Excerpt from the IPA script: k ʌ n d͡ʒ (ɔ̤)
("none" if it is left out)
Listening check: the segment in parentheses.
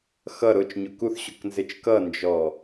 ɔ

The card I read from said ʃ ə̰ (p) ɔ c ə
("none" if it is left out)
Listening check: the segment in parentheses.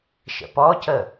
p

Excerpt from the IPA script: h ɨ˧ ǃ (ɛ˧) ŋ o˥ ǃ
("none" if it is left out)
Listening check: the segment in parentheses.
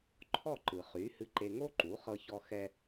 e˧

